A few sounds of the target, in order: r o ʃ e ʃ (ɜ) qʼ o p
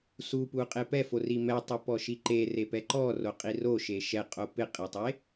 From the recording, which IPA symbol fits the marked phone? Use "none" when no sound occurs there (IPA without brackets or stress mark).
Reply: ɛ